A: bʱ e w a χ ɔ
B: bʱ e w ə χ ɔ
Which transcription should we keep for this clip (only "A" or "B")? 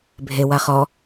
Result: A